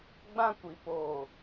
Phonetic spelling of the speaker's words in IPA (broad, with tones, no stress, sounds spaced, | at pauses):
ɡ͡b ã˦ kʷ i˨ p oː˨